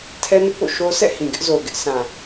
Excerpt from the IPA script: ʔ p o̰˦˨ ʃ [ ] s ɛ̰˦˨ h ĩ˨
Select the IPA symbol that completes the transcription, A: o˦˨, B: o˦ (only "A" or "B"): B